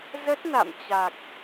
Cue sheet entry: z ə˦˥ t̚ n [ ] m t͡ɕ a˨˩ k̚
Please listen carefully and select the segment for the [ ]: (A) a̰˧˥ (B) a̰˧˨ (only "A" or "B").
B